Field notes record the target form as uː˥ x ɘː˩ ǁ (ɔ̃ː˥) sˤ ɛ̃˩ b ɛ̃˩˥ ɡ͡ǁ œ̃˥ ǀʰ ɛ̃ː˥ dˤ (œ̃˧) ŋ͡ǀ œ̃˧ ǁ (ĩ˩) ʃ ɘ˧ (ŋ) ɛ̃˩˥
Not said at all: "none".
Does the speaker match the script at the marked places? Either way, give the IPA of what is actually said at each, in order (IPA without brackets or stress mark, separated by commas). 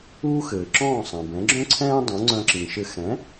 ɔ̃ː˥˩, œ̃˩˥, ĩ˩, x